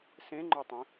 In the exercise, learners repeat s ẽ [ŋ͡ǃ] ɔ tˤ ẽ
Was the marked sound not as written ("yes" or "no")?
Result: no